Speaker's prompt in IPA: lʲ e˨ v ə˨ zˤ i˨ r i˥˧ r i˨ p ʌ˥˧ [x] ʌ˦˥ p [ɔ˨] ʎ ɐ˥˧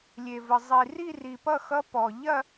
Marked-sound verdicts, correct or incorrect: correct, correct

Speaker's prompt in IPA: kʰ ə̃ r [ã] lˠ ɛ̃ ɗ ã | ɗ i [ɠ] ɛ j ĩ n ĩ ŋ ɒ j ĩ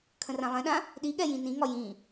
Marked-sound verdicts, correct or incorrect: correct, correct

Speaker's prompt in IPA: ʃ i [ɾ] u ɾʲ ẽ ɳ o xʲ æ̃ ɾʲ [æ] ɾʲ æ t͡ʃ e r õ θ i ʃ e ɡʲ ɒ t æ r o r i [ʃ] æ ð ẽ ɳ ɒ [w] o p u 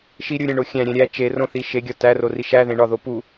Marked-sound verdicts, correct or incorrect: incorrect: ɾʲ, incorrect: æ̃, correct, incorrect: ð

